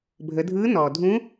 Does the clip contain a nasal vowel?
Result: yes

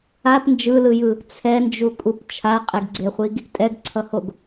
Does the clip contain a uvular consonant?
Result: yes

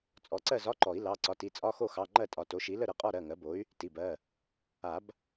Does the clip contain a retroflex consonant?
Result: no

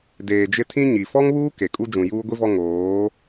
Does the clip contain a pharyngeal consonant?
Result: no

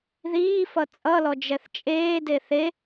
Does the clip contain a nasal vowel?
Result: no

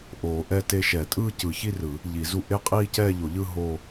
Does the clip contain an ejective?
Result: yes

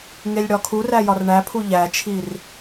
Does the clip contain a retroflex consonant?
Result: yes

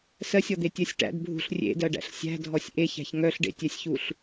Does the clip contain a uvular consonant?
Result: no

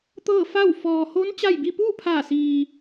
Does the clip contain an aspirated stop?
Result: yes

